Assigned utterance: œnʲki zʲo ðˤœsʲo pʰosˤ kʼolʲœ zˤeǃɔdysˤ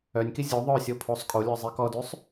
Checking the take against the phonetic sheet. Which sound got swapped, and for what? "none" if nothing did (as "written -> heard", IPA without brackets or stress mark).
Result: ǃ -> k